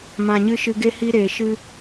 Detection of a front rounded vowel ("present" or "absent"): absent